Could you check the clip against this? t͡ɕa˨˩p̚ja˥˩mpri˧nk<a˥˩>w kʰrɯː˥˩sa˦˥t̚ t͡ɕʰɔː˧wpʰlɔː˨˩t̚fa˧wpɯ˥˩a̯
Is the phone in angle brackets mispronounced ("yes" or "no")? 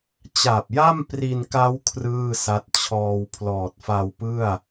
yes